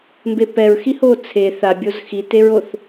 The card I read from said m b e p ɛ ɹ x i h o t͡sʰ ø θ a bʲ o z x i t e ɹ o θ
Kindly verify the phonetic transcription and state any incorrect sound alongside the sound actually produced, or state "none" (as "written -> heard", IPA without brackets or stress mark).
ø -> e